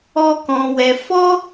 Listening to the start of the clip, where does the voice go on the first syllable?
high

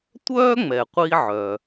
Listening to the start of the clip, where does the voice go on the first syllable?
high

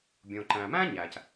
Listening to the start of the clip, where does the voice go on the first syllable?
low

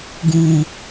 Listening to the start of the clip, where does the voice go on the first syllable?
low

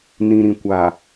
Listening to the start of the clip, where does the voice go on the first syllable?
low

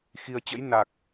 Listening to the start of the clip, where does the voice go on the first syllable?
low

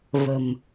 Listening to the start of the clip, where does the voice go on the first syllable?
low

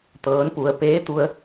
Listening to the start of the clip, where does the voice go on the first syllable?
rising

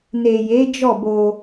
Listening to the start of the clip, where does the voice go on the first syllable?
low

